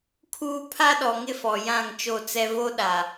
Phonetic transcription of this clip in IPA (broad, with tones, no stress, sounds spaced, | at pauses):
kʰ uː˦ pʰ a˦ ɗ ɔ˨ ŋ ɪ˦ f ɔ˨ j ã˦˨ ŋ t͡ʃ o˦˨ t͡s ɛ˦ v o˦ ɗ a˨